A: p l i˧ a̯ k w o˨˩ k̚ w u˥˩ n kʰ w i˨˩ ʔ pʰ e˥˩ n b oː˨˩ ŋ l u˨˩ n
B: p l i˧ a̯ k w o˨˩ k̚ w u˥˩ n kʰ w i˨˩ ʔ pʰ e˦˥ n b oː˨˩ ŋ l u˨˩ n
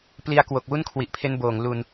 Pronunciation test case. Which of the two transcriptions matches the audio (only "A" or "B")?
B